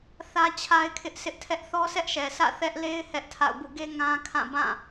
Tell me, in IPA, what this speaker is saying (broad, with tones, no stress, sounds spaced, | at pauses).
θ ä˦ t͡ɕʰ a˦ ɪ̯ kʰ ɪ˦ ʔ sʰ ɪ˦ ʔ tʰ ɛ˦ ʔ θ ɔ˦ s ɛ˦ ʔ ʃ ɛ˨ s ä̰˦˨ θ ɛ˦ ʔ l e˦ ɪ̯ h ɛ˦ ʔ tʰ a̰˦˨ ʊ̯ b ṵ˦˨ ɡ e˦ ŋ ã˦ kʰ ã˦˨ b ã˦˨